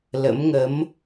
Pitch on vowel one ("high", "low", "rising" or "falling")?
rising